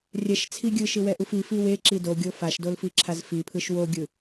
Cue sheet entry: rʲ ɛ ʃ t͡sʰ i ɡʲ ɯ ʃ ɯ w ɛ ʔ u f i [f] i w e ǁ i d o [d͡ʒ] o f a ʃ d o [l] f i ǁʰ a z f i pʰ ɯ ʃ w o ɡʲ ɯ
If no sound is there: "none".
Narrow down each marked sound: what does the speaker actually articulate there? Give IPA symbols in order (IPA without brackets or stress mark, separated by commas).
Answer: f, ɡʲ, l